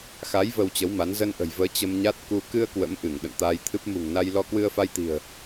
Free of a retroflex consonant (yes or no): yes